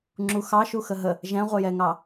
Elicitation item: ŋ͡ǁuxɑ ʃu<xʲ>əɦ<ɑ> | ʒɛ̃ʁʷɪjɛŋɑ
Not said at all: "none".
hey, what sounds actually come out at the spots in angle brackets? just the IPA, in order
x, ə

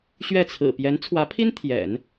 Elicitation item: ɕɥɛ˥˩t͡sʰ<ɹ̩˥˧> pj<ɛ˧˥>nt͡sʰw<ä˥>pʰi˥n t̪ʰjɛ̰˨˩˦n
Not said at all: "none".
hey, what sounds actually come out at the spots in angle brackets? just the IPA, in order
ɹ̩˨˩, ɛ˧˥, ä˧˥

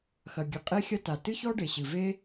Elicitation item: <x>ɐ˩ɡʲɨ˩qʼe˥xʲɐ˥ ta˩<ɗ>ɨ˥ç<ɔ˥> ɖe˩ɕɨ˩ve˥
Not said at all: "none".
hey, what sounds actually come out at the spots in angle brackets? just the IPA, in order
x, t, ɔ˥

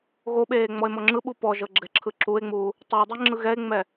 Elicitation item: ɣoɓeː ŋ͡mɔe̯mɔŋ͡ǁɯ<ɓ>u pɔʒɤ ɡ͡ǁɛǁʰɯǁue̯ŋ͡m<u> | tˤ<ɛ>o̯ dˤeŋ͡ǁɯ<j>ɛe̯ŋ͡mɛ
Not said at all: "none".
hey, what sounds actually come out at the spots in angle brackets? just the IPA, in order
ɓ, uː, ɛ, ɣ

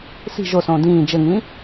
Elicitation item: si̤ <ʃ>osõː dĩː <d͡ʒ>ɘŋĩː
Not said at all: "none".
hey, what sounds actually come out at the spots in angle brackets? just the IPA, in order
ʒ, d͡ʒ

